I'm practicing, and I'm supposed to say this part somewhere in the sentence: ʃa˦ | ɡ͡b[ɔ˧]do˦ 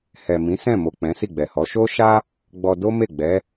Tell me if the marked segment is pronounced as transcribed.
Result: yes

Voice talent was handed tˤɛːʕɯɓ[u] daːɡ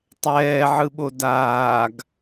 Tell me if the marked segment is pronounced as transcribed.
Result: no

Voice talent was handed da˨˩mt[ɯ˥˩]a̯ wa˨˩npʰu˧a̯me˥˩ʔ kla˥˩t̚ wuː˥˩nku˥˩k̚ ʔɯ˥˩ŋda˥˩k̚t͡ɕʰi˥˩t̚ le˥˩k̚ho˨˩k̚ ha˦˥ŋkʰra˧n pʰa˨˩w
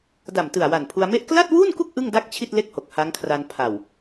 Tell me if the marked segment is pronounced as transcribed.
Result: no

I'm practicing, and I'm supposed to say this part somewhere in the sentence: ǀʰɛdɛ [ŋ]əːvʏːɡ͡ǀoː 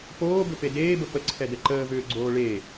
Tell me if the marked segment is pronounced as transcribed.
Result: no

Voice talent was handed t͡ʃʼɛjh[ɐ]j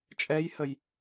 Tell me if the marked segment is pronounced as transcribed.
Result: no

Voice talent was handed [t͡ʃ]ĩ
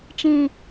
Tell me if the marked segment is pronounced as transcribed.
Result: yes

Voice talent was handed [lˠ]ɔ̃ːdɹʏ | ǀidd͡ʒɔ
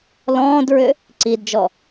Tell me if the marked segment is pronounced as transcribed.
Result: no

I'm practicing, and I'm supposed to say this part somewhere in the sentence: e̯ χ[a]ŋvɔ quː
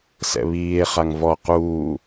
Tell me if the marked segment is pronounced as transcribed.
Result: yes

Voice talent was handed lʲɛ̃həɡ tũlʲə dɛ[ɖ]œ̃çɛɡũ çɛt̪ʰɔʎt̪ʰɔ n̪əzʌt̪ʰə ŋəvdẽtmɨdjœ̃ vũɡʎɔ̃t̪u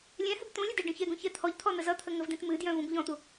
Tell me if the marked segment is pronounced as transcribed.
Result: yes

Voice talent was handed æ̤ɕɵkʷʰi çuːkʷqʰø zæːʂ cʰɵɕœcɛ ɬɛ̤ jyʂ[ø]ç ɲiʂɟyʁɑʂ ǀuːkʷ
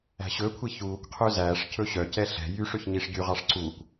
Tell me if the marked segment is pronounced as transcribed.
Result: yes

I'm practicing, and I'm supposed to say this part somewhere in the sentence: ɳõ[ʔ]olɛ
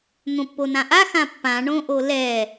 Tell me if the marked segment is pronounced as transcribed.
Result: yes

